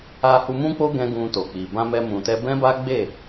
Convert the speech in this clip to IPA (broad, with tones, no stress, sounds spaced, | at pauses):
a˧ h u˧ m ũ˦ k͡p o˦ ɡ ɛ̃˧ ɡ ũ˧ t o˨ k͡p i˨ b ã˧ m ɛ˧ m ũ˨ t ɛ˧ b ɛ̃˦ b a˦ ɡ͡b e˦˨